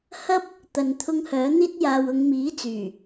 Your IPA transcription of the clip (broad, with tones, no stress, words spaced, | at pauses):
hɐ˥p̚ | t̪ɐ˨nt̪ʰʊ˧ŋ hœː˨˥n̪iː˥t̚jaː˧w ʊ˨˧ŋmiː˨˥t͡syː˨˩